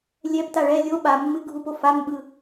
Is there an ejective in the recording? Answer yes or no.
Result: no